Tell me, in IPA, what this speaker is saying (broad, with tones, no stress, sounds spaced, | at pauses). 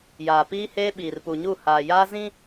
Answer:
j aː˨ p iː˦ h eː˦ ɓ iː˨ r p u˨ ɲ u˦˨ h aː˨ j aː˦ z ĩ˦